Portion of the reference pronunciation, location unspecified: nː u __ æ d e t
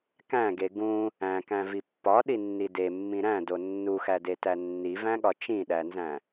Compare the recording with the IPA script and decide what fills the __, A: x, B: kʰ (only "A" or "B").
A